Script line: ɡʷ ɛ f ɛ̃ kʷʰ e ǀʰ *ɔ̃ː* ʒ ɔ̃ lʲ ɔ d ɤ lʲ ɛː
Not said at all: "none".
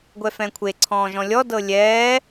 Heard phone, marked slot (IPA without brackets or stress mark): ɔ̃ː